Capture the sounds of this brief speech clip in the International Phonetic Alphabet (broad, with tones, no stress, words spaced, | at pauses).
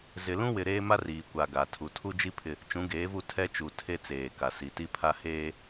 zɪ˨lũ˦wɪ˨ ɾeː˦ma˦ riː˨kʷa˨ ɡa˨ tʰu˨tʰu˦d͡ʒi˦ pʰɪ˦ | t͡ʃũ˨˦ɡeː˨˦vu˦˨ tʰɛ˦t͡ʃu˨tʰe˦ t͡seː˨ ka˨si˨ ti˦ pʰa˦heː˦